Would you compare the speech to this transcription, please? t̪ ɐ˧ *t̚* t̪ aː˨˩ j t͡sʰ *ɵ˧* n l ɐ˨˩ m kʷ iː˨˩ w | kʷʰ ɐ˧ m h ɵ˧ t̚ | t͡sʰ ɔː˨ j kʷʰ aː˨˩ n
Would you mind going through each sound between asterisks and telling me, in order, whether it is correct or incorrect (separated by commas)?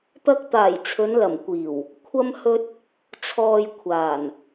incorrect, incorrect